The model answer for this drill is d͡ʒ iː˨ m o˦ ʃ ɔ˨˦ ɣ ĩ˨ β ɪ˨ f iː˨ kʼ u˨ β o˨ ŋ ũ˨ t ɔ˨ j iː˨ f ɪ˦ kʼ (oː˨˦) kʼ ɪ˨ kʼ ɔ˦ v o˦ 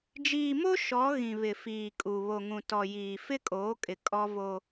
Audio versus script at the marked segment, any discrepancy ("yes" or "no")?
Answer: no